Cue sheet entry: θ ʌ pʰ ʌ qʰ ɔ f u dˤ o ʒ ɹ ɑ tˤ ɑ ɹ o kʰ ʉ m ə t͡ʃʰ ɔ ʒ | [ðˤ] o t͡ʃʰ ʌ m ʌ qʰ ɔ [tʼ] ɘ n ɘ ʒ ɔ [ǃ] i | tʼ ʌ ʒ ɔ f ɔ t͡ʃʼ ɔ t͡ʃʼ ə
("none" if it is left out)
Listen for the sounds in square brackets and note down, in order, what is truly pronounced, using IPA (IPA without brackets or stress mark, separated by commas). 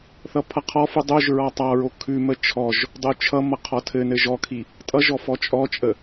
dˤ, tʰ, kʰ